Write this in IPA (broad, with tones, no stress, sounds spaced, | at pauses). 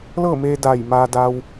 l ɤː˥˨ m eː˧ d aː˧˩ j m aː˧ d a˧ w